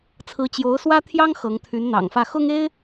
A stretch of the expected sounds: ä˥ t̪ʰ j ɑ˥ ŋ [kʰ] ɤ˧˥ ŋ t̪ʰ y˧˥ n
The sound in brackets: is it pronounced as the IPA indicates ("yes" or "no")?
no